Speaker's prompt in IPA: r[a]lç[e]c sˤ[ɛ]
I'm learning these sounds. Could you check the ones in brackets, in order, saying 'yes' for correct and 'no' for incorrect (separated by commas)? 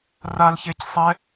yes, yes, yes